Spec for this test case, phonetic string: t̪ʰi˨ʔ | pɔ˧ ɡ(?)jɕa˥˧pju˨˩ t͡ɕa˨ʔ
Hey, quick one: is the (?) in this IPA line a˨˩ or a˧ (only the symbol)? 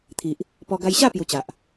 a˧